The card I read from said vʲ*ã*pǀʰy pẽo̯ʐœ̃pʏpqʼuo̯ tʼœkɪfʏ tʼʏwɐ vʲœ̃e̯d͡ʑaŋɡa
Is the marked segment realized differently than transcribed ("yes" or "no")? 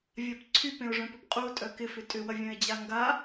yes